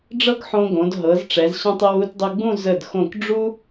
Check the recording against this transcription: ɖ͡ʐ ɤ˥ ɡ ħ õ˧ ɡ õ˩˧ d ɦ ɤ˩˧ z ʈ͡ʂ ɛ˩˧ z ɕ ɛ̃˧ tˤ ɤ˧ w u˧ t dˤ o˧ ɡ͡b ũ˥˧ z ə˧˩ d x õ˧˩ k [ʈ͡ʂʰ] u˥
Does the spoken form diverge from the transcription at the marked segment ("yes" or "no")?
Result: yes